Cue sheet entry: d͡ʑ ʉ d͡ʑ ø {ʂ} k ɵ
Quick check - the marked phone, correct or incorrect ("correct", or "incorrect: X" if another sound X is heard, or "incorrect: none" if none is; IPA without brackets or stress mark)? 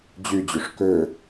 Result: correct